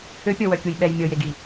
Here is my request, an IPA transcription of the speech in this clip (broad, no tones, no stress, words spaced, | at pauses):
øpʲɔwœkʲuj ɓɛj mʲɔjeɡi